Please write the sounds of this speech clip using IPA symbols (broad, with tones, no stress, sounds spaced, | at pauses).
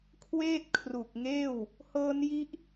kʰ w eː˥˩ t̚ kʰ r u˨˩ k̚ ŋ eː˥˩ w | h ɤː˦˥ n j i˦˥ ʔ